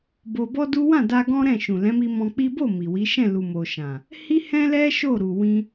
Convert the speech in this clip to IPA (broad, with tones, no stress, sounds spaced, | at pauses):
b o˧ b ɔ˦ d u˦ w ã˦˨ d a˧ ɡ ɔ̃˦ ɾ ɛ̃˦˨ ʃ ũ˨ l ɛ̃˨˦ m i˧ m ɔ̃˧ k͡p i˦ b o˦˨ m i˨ w i˨˦ ʃ ɛ̃˦˨ l u˨ m o˨ ʃ ã˨ | h i˦ h ɛ̃˦ l ɛ˦ ʃ o˦˨ ɾ u˨ w ĩ˧